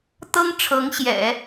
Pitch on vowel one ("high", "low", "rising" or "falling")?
high